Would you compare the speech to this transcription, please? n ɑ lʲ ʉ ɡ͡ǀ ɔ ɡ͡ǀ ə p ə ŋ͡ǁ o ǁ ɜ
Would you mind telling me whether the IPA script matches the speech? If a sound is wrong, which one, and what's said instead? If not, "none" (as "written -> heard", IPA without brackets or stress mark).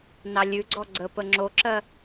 none